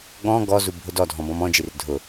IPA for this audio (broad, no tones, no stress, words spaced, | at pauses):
ɠɔ̃ ɡɔzubʱʊ dɔdʱɔ̃bɔ̃m ɔ̃d͡ʒir dʱʊ